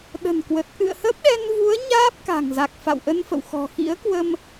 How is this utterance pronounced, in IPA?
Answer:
ɗ ə̤˨˩ n k w ə˨˩ t̚ ʔ ɨ̰˧˨ ə̯ h ə˦˥ p̚ ɗ ɛ˧ n v u˨˦ ə̯ ɲ aː˦˥ p̚ k a̤˨˩ ŋ z a˨˩ k̚ f a̰˧˨ w ʔ ə˧ n f ə̰˧˨ w x ɔ̤˨˩ x ḭ˧˥ ə̯ k w ə˧ m

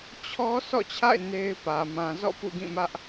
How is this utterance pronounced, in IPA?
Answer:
t͡ɕʰ ɔ˦ s ɔ̰˦˨ t͡ɕʰ a̰˦˨ ɪ̯ n e˦ ɪ̯ p ä˨ m ã˨ z ɔ̰˦˨ p ṵ˦˨ ɡ ĩ˦˨ m ä˦ ʔ

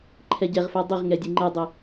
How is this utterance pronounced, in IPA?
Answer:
ǃʰ ɛ ɟ ɛ ʁ f ɛ dˤ i ʁ ŋ ɛ dʲ e ŋ͡ǃ ɘ dˤ e

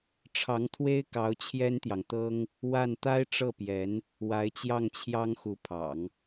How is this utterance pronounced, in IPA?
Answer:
ʈ͡ʂʰ ɑ˧˥ ŋ t̪ʰ w e˥ ɪ̯ k ɑ˧˥ ʊ̯ t͡ɕʰ j ɛ˥ n t̪ j ɑ˨ ŋ t̪ ɤ˥ ŋ | w a˥˩ n t̪ a˥ ɪ̯ ʈ͡ʂ ɤ˥˩ p j ɛ˧˥ n | w a˧˥ ɪ̯ t͡ɕ j ɑ˥˩ ŋ t͡ɕʰ j ɑ˥ ŋ x u˧˥ pʰ ɑ̰˨˩˦ ŋ

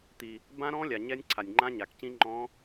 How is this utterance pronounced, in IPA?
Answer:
t̪ i˨ | b ã˦˥ ɾ ɔ̃˦˥ lʲ a˨ ɲ ɛ˦˥ nʲ ǀʰ a˨ nʲ ŋ͡ǃ ã˦˥ ɲ a˨ k c ĩ˦˥ ŋ͡ǃ ɔ̃˦˥

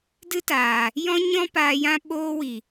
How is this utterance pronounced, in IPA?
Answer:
d ɨ˦ t aː˨ | j ɔ̃˦ ɲ ɔ̃˦ p aː˧ j ã˦ ɓ oː˧ w i˨

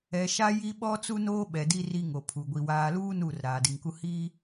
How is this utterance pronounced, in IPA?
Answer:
ɛ˨ ʃ a˦ j i˦ ɓ ɔ˦ t͡s u˦ n oː˦ ɓ ɛ˨ d i˦ r i˦ ŋ o˨ pʰ u˨ ɡʷ i˨ w aː˨ l uː˦ n uː˦˨ r ɾ aː˨ d i˨ ŋ k u˦ h i˦

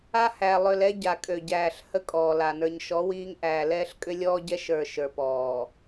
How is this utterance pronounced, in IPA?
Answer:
a˦ h æ˨ lˠ ø˨ l ɛ˦ ɟ a˨ kʼ ø˨ ɟ æː˨ ɬ h ə˦ kʼ ɔː˨ l a˨ n ə˞˨ ɲ ʃ ɔ˨˦ w iː˦ ŋ ʔ æː˨ l ɛː˦ ɬ kʼ ʏ˦ lʲ ɔː˦ ɟ ɛ˦ ʃ ə˞˨ ʃ ə˞˨ p ɔː˨

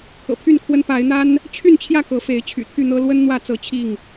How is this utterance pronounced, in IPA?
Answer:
kʰ ɤ̰˨˩ pʰ y˥˨ n kʰ w ə˦ n p a˨˦ ɪ̯ n̪ a˦ n | t͡ɕʰ y˥˨ n t͡ɕʰ j ä˥˨ k ɤ˨˦ f e˨˦ ɪ̯ t͡ɕʰ y̰˨˩ t̪ʰ y˥˨ n̪ ɤ˦ l w ə˦ n n̪ w ä˥˨ t͡s ɤ˥˨ t͡ɕʰ i˥˨ ŋ

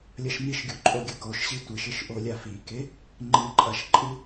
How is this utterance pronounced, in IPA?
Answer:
lʲ ɐ ʃ m i ʃ ɡʲ u ǃʼ o ɡʲ ɐ k o ʃ ɕ i tʷ ɘ ʃ ɘ ʃ ʔ o lʲ a f i k e | ŋ͡ǃ ɨ ǃʼ ɐ ʃ ǃʼ ɨ

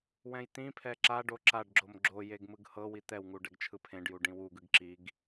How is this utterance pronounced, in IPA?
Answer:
w ɛ̃ j t̪ ĩ pʰ ɛ ǁ a ɖ o ǁ a ɖ ɡ͡ǁ o m ɡ͡ǁ o j e ɡ m ɯ ɡ h ɤ w i t̪ ɛ w ŋ u ɖ ɛ ɡ t͡ʃʰ ɯ pʰ ẽ ɖ j u ɖ ĩ w u ɡ ɯ ɡ ǁ i ɡ

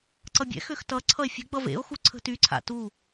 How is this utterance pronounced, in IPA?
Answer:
ǀ ʌ bʲ ɛ̰ x ø x t ʌ ǀʰ ʌ e̯ fʲ ə̤ ɡ͡b ʌ v ḛ o̯ x u ǀʰ ə̤ t y ǀʰ a̰ t u

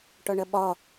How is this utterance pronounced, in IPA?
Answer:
ʈ ɒ ɳ ɐ ɓ ɒ

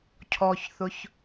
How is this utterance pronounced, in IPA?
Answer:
cʰ ɔ ç θ ʊ ç

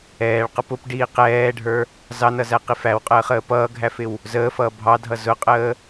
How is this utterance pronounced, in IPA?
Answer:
ɛː ɭ q ʌ p ʊ p ɖ iː q ɛː ɖʱ ə˞ | z ɑ n ʌ z æ q i f æ w qʼ əː χ əː p ʌː ɡʱ æ f ɪ w | z əː f ʌː bʱ ɑ dʱ ʌ z ʊ qʼ əː

